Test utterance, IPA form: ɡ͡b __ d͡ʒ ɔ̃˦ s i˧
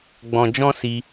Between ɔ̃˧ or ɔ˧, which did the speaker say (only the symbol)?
ɔ̃˧